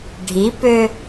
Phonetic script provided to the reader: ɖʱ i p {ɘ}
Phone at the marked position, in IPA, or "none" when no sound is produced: ø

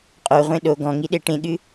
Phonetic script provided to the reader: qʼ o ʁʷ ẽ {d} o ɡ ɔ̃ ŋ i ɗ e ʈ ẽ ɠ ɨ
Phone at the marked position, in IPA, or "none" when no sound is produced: ɗ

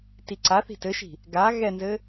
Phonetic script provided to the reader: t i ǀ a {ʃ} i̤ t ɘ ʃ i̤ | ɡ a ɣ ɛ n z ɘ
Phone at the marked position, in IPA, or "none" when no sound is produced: θ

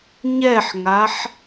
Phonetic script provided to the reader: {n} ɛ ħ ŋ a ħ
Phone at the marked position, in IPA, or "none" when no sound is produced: ɲ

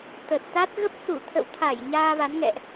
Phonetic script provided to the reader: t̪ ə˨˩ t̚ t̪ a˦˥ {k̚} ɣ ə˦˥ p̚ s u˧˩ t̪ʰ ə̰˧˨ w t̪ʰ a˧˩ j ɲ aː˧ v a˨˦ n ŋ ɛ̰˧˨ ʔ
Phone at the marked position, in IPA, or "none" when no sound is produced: t̚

